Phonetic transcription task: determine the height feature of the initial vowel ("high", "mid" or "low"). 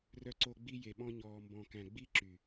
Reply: mid